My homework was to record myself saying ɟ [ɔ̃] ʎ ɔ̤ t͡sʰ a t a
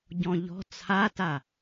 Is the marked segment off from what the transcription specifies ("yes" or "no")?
no